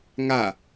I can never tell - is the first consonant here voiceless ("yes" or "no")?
no